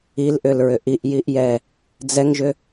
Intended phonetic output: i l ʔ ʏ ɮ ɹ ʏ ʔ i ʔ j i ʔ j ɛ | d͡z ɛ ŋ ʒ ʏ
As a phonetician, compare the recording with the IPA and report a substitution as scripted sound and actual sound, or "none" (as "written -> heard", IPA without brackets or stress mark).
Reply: ɮ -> l